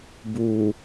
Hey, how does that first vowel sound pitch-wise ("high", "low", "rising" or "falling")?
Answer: low